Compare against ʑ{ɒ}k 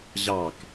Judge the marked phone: incorrect: ɑ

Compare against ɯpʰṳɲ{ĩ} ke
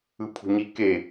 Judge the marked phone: incorrect: i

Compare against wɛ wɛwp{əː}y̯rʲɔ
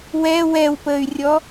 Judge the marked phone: correct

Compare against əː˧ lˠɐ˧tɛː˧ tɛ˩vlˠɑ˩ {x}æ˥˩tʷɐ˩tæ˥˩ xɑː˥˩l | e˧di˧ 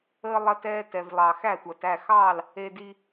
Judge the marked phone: correct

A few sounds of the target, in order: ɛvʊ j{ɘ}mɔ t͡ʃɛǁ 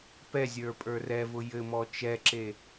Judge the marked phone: correct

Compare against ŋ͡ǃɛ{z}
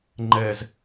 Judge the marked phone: correct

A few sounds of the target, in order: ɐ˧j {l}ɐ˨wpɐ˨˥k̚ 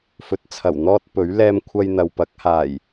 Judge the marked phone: incorrect: n̪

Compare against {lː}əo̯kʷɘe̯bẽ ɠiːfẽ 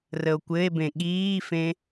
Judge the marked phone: incorrect: r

